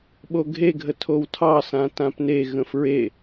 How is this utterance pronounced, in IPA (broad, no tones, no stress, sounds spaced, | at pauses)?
ɓ o ɡʱ e ɡʱ ə tʰ o w tʰ ɑ s ã t ã p n e ɣ ə̃ f ɹ e